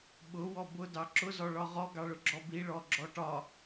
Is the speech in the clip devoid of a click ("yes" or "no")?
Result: no